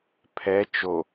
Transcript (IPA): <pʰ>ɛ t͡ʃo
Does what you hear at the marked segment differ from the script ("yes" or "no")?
no